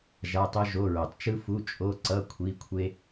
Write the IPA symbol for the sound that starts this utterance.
ʒ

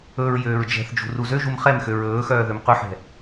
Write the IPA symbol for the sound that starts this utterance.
ɵ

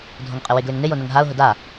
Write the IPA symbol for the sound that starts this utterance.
dʱ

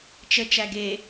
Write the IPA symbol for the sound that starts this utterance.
t͡ʃ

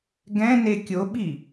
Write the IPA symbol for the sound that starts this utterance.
ɡ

